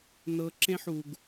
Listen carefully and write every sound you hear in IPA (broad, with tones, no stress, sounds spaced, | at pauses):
n ɤ˨˦ ǁ ẽ˦ ħ u˨ ɡ